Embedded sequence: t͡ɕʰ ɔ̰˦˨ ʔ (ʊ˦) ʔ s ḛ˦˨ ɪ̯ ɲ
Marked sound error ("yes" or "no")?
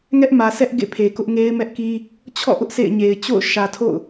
no